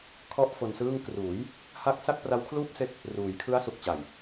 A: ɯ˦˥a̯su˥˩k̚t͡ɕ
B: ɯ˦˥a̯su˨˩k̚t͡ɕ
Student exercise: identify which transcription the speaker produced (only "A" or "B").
B